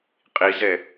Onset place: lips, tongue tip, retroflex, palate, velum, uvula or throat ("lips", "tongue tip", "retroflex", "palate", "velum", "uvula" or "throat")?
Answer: uvula